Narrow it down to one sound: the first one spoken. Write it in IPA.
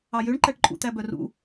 ɑ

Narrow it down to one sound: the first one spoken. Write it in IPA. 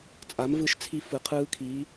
t͡sʼ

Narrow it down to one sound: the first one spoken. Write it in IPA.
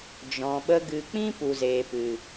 d͡ʒ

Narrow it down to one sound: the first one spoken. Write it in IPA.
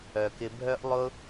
œ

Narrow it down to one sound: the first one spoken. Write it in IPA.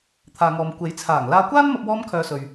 t̪ʰ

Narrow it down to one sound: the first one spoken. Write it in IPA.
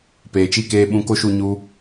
p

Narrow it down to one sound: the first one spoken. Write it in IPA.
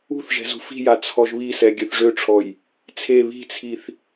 ṳ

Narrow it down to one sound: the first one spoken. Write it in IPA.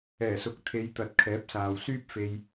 ɛː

